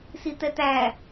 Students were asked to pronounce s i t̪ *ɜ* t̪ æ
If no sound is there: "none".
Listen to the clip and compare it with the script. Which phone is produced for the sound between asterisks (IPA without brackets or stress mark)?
ɛ